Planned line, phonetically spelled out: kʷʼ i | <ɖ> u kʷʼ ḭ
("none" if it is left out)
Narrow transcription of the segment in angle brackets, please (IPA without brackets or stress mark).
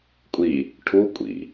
ʈʰ